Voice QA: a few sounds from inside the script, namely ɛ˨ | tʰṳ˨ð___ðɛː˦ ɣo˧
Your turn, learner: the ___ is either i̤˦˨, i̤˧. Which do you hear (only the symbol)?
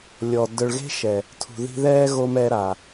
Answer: i̤˧